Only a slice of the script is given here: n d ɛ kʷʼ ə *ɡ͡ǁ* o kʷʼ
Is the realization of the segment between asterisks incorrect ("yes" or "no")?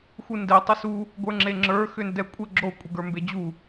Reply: no